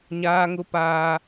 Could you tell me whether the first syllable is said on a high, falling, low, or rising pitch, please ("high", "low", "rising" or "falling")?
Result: high